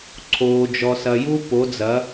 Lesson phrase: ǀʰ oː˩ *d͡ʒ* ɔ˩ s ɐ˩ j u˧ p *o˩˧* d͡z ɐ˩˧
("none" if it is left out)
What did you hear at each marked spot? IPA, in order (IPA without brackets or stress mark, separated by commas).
d͡ʒ, o˩˧